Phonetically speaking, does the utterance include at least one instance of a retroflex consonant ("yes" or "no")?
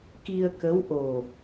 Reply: no